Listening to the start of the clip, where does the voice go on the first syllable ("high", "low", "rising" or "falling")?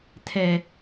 high